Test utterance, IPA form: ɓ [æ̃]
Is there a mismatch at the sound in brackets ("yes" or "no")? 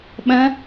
yes